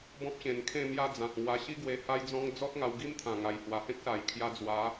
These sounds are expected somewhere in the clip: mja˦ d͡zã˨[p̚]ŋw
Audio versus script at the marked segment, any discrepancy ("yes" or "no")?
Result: yes